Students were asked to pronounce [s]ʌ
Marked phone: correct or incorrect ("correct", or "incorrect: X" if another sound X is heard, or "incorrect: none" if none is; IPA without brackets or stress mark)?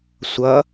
incorrect: sʷ